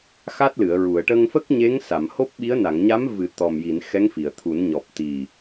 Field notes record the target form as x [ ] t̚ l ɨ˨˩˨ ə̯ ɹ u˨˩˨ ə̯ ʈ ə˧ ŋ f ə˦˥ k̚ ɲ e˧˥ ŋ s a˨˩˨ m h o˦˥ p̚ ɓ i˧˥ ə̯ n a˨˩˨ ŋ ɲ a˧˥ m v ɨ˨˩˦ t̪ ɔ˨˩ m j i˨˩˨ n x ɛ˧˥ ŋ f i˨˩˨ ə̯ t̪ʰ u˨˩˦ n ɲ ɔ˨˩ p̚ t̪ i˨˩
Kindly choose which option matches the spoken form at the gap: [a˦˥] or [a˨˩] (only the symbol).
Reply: a˦˥